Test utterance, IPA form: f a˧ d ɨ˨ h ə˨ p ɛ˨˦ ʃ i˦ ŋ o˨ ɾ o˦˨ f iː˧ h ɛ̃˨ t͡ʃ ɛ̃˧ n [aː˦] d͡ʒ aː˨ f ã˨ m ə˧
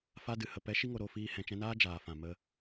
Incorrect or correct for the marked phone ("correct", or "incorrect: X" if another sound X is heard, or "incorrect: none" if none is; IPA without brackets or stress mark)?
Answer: correct